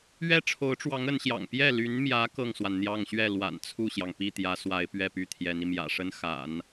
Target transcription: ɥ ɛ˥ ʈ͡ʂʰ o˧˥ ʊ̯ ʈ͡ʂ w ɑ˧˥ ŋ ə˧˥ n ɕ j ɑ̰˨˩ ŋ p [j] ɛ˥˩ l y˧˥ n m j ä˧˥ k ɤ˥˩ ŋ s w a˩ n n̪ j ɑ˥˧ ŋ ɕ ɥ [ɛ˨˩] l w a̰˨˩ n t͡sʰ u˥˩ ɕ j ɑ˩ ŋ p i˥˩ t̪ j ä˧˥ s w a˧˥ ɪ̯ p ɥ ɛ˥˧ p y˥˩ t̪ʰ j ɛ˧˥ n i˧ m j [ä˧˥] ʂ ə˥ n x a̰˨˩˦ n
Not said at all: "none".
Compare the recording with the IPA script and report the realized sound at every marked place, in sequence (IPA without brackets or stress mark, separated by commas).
j, ɛ˥˩, ä̰˨˩